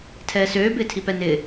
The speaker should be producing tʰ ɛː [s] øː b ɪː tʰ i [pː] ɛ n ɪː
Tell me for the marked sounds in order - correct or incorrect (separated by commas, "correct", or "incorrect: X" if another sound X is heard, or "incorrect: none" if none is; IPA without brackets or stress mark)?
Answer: correct, incorrect: p